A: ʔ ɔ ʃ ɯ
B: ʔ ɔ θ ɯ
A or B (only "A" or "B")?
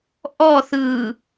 B